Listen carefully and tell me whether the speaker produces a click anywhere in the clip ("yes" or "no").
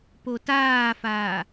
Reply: no